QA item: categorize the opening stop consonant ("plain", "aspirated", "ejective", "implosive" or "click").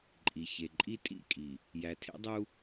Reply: click